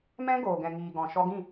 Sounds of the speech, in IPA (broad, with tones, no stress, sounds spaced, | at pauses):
m ɛ̃˦ ɡ oː˨ ɡ ɛ̃˨ ŋ iː˨ ɡ ɔ̃˨ ʃ ɔ˧ ɡ ĩ˦˨